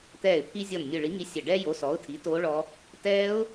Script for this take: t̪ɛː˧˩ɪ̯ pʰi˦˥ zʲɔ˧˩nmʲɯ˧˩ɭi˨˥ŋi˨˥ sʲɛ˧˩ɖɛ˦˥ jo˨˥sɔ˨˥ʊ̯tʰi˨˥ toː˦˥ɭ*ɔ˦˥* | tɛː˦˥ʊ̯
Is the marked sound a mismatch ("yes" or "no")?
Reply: no